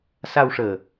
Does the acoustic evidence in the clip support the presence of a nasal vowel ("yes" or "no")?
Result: no